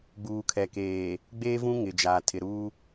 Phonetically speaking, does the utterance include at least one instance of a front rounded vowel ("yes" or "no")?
no